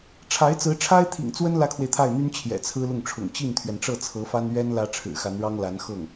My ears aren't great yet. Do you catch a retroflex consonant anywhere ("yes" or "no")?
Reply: yes